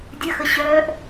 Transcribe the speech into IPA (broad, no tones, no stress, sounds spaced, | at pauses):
dʲ ə x ə ɕ œː ʔ